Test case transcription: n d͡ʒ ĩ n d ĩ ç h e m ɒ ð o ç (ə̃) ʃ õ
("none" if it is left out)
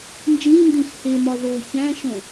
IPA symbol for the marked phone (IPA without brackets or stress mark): æ̃